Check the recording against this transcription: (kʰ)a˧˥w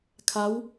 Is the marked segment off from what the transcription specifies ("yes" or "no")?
no